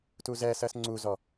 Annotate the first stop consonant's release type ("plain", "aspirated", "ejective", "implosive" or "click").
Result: plain